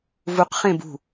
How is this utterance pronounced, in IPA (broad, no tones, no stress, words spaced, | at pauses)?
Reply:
vuqχẽ bṳ